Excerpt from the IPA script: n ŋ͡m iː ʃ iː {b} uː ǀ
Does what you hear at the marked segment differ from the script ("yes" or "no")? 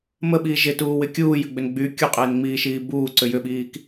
no